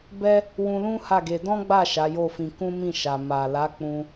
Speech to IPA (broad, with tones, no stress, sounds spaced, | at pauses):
b ɛ˦ | w ũ˧ l ũ˦ h a˦˨ ɡ e˧ d ɔ̃˦ ɡ͡b a˦˨ ʃ a˨˦ j o˦˨ f ĩ˧ k ũ˦ m ĩ˦˨ ʃ a˨ m a˨ l a˨˦ k͡p ũ˧